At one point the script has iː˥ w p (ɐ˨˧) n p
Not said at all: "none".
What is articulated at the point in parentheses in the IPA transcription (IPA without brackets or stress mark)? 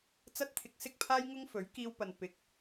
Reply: ɐ˧